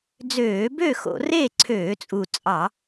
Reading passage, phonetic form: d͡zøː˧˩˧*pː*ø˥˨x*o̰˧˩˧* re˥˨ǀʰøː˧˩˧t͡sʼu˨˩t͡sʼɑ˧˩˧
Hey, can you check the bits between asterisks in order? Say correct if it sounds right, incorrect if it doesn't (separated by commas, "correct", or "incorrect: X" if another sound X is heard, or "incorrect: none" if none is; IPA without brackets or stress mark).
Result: incorrect: b, correct